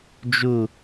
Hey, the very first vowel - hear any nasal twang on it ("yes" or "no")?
no